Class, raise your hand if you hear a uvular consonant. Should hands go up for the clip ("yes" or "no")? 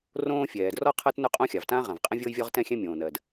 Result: yes